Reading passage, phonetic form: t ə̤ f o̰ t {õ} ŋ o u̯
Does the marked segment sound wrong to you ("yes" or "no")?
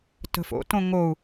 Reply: no